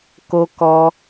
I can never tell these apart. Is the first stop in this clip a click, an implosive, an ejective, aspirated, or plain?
plain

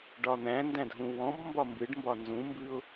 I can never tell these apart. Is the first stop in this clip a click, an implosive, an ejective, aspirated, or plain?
plain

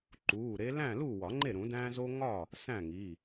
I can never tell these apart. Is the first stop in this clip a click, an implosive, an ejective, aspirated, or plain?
click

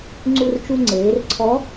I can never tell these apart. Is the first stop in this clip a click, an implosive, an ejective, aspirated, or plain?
click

